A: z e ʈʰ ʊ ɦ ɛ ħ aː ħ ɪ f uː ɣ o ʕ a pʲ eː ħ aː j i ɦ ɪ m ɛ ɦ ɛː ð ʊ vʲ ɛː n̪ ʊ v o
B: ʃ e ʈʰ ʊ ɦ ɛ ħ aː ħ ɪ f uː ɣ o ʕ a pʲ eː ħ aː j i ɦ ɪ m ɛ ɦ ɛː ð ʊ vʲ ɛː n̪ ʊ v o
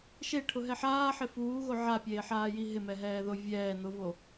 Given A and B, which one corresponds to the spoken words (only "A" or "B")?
B